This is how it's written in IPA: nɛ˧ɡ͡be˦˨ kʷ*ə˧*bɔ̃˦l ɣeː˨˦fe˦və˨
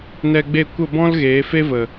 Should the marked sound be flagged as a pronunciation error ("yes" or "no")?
yes